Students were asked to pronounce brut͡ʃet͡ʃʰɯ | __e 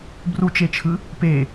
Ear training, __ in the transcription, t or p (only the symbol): p